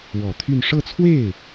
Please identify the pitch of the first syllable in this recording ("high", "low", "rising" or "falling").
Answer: low